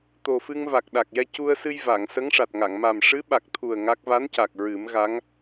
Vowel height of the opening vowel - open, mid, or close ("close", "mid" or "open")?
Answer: mid